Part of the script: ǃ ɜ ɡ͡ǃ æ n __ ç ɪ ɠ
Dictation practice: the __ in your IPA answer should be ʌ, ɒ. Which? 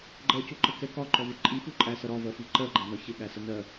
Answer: ɒ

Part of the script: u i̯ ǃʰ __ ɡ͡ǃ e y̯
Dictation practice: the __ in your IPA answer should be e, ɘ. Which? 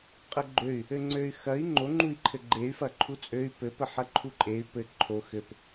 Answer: ɘ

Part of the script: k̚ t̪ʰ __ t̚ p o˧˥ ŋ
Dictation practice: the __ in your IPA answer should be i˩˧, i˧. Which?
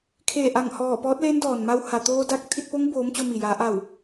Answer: i˧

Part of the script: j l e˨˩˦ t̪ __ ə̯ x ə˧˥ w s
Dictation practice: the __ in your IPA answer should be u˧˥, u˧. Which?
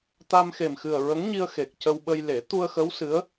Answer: u˧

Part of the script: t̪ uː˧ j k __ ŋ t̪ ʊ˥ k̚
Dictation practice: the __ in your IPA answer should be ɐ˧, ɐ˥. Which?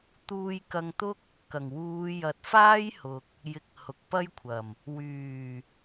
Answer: ɐ˧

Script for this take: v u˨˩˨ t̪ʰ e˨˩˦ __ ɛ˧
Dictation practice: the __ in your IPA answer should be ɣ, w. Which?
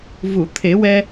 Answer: w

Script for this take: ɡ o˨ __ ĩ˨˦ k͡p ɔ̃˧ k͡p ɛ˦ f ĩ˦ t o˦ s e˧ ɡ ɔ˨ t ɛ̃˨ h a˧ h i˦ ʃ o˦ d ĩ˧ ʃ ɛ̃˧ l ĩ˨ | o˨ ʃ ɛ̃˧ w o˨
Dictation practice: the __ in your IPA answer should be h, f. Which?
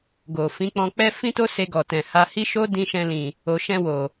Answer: f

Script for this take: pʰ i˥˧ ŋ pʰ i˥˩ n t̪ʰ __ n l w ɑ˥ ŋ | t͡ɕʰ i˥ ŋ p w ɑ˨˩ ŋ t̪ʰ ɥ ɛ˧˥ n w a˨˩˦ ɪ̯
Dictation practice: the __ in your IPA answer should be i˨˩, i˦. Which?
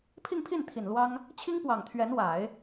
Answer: i˨˩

